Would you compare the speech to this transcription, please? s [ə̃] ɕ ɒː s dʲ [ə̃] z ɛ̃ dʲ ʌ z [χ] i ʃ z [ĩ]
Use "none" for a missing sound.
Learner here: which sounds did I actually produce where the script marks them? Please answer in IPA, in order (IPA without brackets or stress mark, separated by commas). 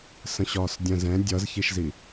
ə̃, ə̃, ç, i